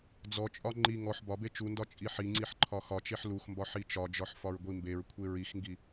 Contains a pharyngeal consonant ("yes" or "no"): yes